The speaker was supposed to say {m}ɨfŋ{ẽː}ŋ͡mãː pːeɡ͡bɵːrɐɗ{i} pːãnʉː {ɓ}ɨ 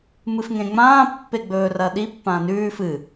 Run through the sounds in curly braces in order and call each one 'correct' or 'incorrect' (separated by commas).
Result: correct, incorrect, correct, incorrect